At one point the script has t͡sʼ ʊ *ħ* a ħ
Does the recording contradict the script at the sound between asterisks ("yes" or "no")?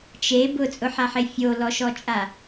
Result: no